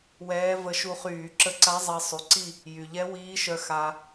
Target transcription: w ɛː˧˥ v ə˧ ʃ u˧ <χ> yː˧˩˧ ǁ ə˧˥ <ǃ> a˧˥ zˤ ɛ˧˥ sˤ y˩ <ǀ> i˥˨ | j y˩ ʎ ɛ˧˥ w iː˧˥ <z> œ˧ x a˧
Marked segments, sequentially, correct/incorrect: correct, incorrect, correct, incorrect

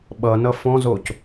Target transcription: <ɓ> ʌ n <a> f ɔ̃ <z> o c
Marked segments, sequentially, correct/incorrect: correct, incorrect, correct

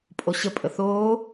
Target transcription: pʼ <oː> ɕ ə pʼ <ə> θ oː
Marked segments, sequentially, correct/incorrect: incorrect, correct

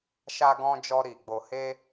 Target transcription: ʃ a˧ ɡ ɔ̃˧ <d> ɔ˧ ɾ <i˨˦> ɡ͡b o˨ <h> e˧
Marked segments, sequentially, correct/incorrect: incorrect, incorrect, correct

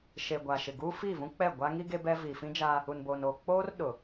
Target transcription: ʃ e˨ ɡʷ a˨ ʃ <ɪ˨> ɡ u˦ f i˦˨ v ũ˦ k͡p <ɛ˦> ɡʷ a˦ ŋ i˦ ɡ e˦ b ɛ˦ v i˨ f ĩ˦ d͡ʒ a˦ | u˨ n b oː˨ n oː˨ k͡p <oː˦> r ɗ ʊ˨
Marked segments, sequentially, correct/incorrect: correct, incorrect, correct

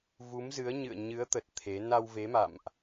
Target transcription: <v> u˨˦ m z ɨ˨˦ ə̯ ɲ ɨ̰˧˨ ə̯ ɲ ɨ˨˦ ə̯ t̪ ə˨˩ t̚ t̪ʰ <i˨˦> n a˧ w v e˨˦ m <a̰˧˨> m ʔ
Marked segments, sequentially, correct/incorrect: correct, incorrect, correct

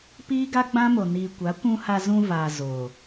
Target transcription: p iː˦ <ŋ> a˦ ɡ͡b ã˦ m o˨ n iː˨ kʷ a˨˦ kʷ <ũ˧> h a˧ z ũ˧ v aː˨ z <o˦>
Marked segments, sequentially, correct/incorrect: incorrect, correct, incorrect

